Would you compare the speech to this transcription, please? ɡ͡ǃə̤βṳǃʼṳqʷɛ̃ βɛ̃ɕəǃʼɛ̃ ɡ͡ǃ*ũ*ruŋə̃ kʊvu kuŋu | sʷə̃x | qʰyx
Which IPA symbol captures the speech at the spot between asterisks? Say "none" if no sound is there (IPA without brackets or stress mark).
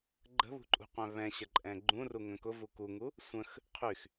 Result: ũ